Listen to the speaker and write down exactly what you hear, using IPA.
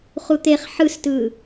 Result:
χ u t̪ e χ ħ ɯ s t ɯː

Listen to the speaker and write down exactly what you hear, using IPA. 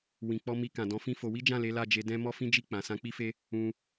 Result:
w ĩ˨ k͡p ɔ˧ m i˧ k ã˨ d ɔ̃˧ f ĩ˦ f o˧ w i˦ d͡ʒ ã˦˨ l e˨˦ l a˦˨ d͡ʒ e˧ d ɛ̃˦ m ɔ˦ f ĩ˦ d͡ʒ i˦˨ k͡p ã˨ s ã˨˦ k͡p i˦ f e˦ | ũ˧

